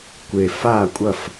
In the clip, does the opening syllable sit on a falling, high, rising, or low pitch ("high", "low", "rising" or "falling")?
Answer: low